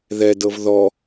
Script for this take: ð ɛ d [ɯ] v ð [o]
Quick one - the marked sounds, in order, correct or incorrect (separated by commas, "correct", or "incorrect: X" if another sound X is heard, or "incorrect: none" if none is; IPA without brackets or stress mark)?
incorrect: ɤ, incorrect: ɔ